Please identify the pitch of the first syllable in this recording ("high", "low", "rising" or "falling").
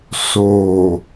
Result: low